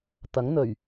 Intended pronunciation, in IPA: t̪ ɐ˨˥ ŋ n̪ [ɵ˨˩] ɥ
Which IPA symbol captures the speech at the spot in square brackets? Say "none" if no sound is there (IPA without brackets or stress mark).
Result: ɵ˨˩